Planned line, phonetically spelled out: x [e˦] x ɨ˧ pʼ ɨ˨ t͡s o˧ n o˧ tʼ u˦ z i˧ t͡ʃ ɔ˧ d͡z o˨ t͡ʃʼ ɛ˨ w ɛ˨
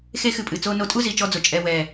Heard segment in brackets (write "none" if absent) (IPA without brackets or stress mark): e˦